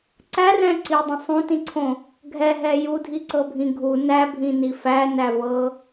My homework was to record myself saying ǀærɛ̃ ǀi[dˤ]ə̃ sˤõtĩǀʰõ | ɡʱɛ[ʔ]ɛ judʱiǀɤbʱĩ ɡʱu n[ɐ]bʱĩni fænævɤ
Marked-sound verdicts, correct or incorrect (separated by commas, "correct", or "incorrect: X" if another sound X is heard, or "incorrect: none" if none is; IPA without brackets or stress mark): correct, incorrect: ɦ, incorrect: æ